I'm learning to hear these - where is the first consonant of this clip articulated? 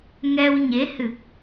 velum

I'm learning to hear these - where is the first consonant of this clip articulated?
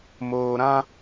lips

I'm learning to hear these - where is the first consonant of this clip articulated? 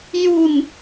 palate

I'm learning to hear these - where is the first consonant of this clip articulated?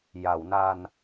palate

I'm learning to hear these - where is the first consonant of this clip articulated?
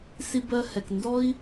tongue tip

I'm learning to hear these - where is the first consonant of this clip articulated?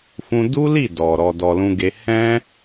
lips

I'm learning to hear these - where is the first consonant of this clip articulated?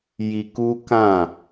palate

